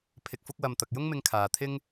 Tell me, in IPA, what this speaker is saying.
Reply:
pʰ ɪ˨ k̚ f ʊ˧ k̚ w ɐ˨ m t̪ ɐ˨ k̚ j ʊ˥ ŋ m ɪ˧ ŋ kʰ aː˨ t̪ʰ ɪ˥ ŋ

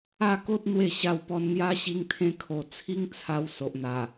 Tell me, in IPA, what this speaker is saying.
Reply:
a˥˧ k o˦ t̚ n̪ w e˥˧ ɕ a˧ w p ɔ˧ n n̪ j a˦ ɕ i˧ ŋ t̪ʰ ẽ˧ kʰ o˨˩ t͡sʰ i˦ ŋ t͡sʰ a˧ w s o˨ ʔ n̪ a˨˩

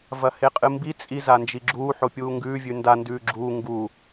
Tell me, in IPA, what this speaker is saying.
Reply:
v ɐ h e qʼ ɨ m b i t͡sʼ i z a n d͡ʒ i ɡ͡ǁ uː ħ o pʲ uː ŋ ɡ ʉː vʲ ʉ n d a n d ʉː ɡ͡ǁ uː ŋ ɡ u

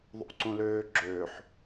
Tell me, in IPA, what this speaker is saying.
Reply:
ðˤ ṵ ǀ ũ l øː ɡ͡ǁ øː ħ

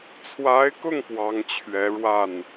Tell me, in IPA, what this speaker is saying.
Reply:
t͡sʰ w a˧˥ ɪ̯ k ʊ˥˩ ŋ p w ɑ˧˥ ŋ t͡ɕʰ ɥ ɛ˧˥ ɻ w a˥˩ n

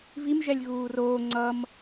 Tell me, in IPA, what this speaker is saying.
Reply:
v i m ʒ ɛ lʲ ɣ uː r oː ŋ͡ǀ ʌ m

